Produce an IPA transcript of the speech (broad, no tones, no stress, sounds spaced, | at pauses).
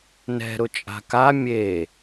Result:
n ɛ̤ ɾ ʊ t͡ʃʼ a̤ k a mʲ e